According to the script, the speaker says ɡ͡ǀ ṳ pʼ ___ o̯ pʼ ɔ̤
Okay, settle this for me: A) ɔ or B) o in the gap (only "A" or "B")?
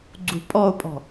A